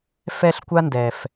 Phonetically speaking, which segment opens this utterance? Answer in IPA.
f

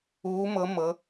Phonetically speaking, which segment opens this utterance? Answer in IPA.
uː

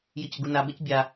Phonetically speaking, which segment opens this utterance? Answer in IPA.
j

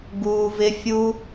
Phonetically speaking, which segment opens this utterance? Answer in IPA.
ɡ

